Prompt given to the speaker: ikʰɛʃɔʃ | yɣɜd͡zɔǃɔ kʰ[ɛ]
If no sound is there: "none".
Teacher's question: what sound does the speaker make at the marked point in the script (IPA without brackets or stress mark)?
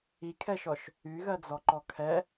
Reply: ɛ